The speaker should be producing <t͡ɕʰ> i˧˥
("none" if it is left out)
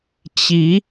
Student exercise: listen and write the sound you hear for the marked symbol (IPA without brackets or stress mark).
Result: t͡ɕ